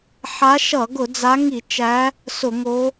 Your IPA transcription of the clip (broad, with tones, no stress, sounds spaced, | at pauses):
ħ a˨˦ ʃ ʌ˧˩˧ ɡ ʊ˧˩˧ d͡z a˨˦ ŋ i˧˩˧ t͡ʃ æ˨˦ | s ʊ˧˩˧ ŋ o˨˦